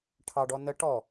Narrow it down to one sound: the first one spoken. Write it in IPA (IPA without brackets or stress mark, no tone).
ʈʰ